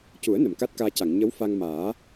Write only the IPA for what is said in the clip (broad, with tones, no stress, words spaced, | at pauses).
cu˨˩˦ə̯ nə˨˩˨mka˦˥t̚kaː˧ca˨˩˨ŋ ɲə˧˥wfa˧ŋmaː˨˩˦